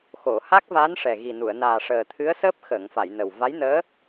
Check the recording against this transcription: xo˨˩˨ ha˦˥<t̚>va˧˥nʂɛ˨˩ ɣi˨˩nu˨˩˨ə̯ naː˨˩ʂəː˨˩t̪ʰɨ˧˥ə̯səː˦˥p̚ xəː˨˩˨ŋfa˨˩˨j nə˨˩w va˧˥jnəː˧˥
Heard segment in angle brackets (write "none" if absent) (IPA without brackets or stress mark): k̚